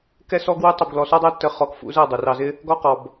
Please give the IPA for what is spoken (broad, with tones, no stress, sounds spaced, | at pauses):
k ɛ˦ s ɔ˦ ɡ w u˦ tˤ i˧ b ɡ l ɔ˧ s ɒ˦ dˤ ɜ˦ tː ə˧ χ ɔ˧ k f ṵ˧ z ɜ˦˨ dˤ u˨ r ɑ˧ z ɪ˦ | ɡ ɒ˦ q ɔ˨ b